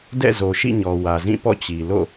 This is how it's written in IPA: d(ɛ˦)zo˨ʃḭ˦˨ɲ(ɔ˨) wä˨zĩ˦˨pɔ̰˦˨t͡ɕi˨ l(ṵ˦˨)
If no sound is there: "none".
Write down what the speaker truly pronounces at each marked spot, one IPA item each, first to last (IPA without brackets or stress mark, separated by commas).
ɛ̰˦˨, ɔ˨, o̰˦˨